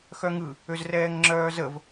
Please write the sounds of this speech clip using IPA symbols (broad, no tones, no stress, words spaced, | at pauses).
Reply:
xœŋɯ | øzrɛːŋŋ͡ǁœːzəv